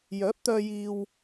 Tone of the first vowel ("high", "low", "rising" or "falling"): rising